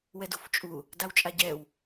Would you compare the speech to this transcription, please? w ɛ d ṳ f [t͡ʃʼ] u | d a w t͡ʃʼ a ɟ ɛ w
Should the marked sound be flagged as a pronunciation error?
no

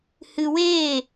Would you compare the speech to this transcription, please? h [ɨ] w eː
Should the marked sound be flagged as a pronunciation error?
no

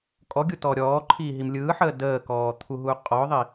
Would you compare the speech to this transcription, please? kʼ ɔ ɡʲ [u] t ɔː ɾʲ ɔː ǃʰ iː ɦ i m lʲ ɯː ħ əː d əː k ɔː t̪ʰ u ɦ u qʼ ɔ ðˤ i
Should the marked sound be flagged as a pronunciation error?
no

